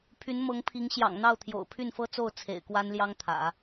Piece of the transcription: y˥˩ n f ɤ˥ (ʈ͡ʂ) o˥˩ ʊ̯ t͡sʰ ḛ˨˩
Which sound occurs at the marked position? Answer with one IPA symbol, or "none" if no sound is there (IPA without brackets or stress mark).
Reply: t͡s